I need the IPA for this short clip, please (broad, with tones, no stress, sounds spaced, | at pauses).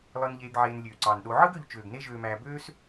lˠ ɯ˨ n ʎ eː˨ ɡ ʕ eː˨ n lʲ øː˩ ǀ ɑ˩ n ɗ o˨ ʕ ɯ˥ ɡ ø˨ ʎ t͡ʃ øː˩ ɡ n e˦ ʒ øː˨ m æː˨ b øː˦ s